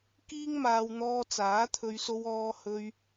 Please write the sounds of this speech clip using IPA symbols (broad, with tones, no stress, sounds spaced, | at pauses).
k iː˥ ŋ m aː˧ w n̪ ɔː˧ t͡s aː˨˥ t̪ʰ ɵ˧ ɥ s o˧ w ɔː˧ h ɵ˧ ɥ